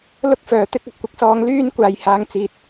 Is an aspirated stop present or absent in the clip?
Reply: absent